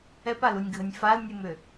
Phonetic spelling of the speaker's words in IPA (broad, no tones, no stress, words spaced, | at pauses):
ɛpalunʲɡʱənʲ falnʲɨmʏ